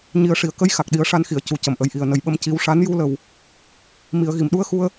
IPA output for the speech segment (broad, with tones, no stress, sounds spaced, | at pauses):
ɲ i˨˩ ə̯ ʂ i˨˩˨ ə̯ k ə˧˥ j x a˨˩ k̚ ɗ i˨˩˦ ə̯ ʂ a˧ n x i˨˩˨ ə̯ c u˨˩ c ə˨˩ m ʔ ə˨˩ j ʔ i˨˩ ə̯ n ə˨˩ j ɓ ə˧ m c i˧˥ w ʂ a˧˥ n j u˧ l ə˨˩ w | m i˨˩˨ ə̯ ɣ i˨˩˨ m ɗ u˧˥ ə̯ x u˧ ə̯